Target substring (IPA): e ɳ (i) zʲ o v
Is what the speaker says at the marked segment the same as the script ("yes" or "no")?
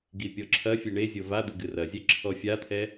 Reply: no